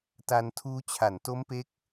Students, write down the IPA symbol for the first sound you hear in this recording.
t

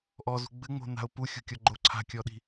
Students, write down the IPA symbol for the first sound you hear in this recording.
ʔ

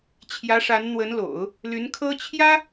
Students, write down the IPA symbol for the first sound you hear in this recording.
t͡ɕʰ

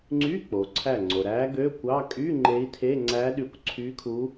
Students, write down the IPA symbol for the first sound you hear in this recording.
ŋ͡ǀ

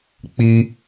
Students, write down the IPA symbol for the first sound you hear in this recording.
k͡p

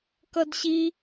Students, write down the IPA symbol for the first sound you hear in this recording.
k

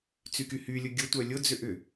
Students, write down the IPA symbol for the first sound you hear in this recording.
t͡s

